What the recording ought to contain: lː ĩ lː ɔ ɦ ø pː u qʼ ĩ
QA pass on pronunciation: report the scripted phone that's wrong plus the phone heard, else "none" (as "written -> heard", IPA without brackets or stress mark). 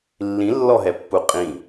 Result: ø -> ɛ